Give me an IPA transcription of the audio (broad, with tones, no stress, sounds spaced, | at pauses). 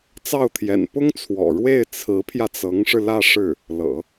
t͡s ɑ˥˩ ʊ̯ t̪ʰ j ɛ̰˨˩ n p ʊ˥ ŋ t͡sʰ w ɔ̰˨˩ ɻ w e˥˩ ɪ̯ t͡sʰ ɹ̩˧˥ pʰ j ä˧ t͡s ɤ˧˥ ŋ ʂ ɻ̩˧ l ä˥˧ ʂ ɻ̩˥˩ | l ɤ̰˨˩˦